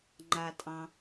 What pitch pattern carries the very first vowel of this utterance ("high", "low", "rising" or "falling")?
low